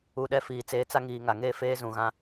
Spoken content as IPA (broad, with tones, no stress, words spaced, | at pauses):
u˨ɗɛ˦fiː˨ t͡seː˨t͡sa˦ ŋiː˨ŋa˨ŋeː˦ feː˦zũ˨ɣã˦